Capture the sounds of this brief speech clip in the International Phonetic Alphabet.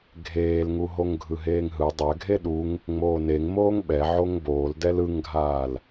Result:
ɡʱ eː l ŋ u ɦ o ŋ ɡʱ ɯ ɦ eː ŋ ɦ ɯ dˤ ɛ ɡʱ e ɗ u ŋ | ŋ͡m oː n e ŋ m oː ŋ ɓ ɛ ʕ o ŋ b oː l d ɛ l ɯ ŋ ɡʱ aː l

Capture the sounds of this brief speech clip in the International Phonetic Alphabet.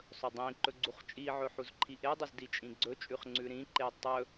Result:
sˤ ɵ dˤ ĩ ǃ ɵ ɡ͡ǀ u χ t͡ʃʼ i ʕ ɵ ħ u z ǃʰ i ʔ e dˤ ɵ z d i t͡ʃʼ ĩ ɡ͡ǀ ɵ t͡ʃʼ ʉ χ ŋ͡ǀ ʉ ɾ ĩ ǃ e tˤ ɵ

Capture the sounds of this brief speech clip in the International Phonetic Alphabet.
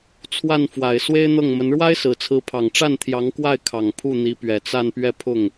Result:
t͡sʰ w a˥˩ n f w a˨˩ ɪ̯ s w e˥ ɪ̯ n̪ ɤ˥˩ ŋ m ə˧˥ n ɻ w a˥ ɪ̯ s ɹ̩˨˩ t͡sʰ ɹ̩˧˥ pʰ ɑ˨˩ ŋ ʈ͡ʂ a˥˩ n t̪ʰ j ɑ˧˥ ŋ k w a˥˩ ɪ̯ kʰ ɑ˨˩ ŋ pʰ u˥˩ n̪ i˧˥ p ɥ ɛ˨˩ t͡s a˥˧ n p ɥ ɛ˥˧ pʰ ʊ˥˩ ŋ

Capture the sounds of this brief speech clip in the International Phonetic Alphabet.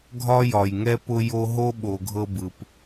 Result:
ɡʱ ɒ˦ j ɒ˩ j ŋ ɛ˦ p ʊ˦ j o˦ ɦ o˥ ɓ o˨ ɡʱ ɤ˦ b ɯ˩ p

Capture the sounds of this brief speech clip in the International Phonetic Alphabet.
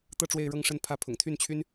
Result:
t̪ ɤ˥˧ ʈ͡ʂ w e˥˧ ɪ̯ ɻ ɤ˥˧ ŋ ʂ ə˥˧ n pʰ ä˥˩ pʰ ʊ̰˨˩ ŋ t̪ʰ y˥˩ n t͡ɕʰ y˥ n

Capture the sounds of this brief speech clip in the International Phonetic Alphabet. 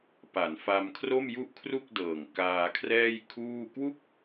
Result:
p a˩˦ n f a˧ m kʰ r o˥˩ m j u˥˩ ʔ kʰ r u˥˩ k̚ d ɤː˨˩ ŋ k aː˧ kʰ r ɛː˥˩ j kʰ uː˥˩ k w u˥˩ k̚

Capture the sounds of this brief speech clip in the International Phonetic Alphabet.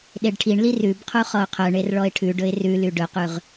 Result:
ɗ e ɖ ʈʰ i ɳ l i r ʉ b qʰ u χ ɔ ʊ̯ qʰ œ ɳ e r ɭ ɔ ɪ̯ ʈʰ ʉ ɖ ɵ ɪ̯ r ʉ l y ɖ ɵ q ʉ ʁ

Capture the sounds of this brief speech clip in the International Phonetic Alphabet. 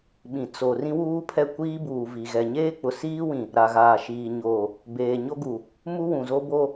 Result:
ɓ ĩ˨ t͡s o˨ r ĩ˦ w uː˦ pʰ ɛ˦˨ kʷ iː˦ b uː˨ v i˨ ɣ ɛ˨ ɲ eː˦ k͡p ʊ˨ s iː˦ w ĩ˨ | ɾ a˨ ɣ aː˨ ʃ iː˨ ɲ oː˨ | b eː˨ ɲ o˦ ɡ u˨ | m u˦ w ũ˨ z o˦ b o˦

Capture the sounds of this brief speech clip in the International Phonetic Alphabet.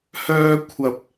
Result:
h œː˧ kʷʰ ɐ˧ p̚

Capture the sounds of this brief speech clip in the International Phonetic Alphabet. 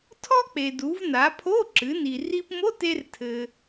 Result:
tʰ ɔ˥ k͡p e˩ d u˩˧ v n a˩˧ pʰ o˧˥˧ ǁ ɨ˩˧ n i˩ r i˧ p m o˧˥˧ t e˧ r tʰ ɘ˩

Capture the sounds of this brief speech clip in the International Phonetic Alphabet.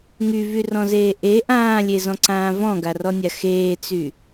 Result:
ŋ y v y r ɔ̃ z eː ʔ e ʔ ãː lʲ e z ɔ̃ ǀ ãː v ɔ̃ ɡ a r ɔ nʲ a x eː t͡s y

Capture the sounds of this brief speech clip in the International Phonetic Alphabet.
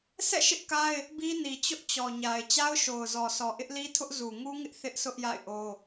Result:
s ɛ̰˦˨ ʃ ɪ˦ ʔ k a˦ ɪ̯ | b i˦ n i˨ t͡ɕ ʊ˦ ʔ t͡ɕ ɔ˨ ɲ a˨ ɪ̯ t͡ɕ a˦ ʊ̯ ʃ o˨ ʊ̯ z ɔ˨ s ɔ˨ ʔ ɪ˦ ʔ l i˦ tʰ ʊ˦ ʔ z u˨ ŋ u˦ ŋ ɪ˦ ʔ θ ɪ˦ ʔ s ʊ˦ ʔ j a̰˦˨ ɪ̯ ʔ o˦

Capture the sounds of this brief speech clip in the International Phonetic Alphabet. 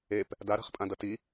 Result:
e p | d a ɾ a̤ χ pʼ ã d ʌ t i

